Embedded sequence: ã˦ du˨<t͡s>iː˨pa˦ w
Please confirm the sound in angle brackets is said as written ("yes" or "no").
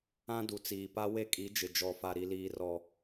yes